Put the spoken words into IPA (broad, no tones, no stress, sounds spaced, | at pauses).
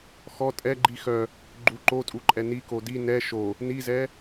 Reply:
x ɔ tʼ ɛ ɡ͡ǃ i x œ | ɡ͡ǃ u ǃ o tʼ u ǃʼ ɛ n i k o d i n ɛ ʃ o | n i z ɛ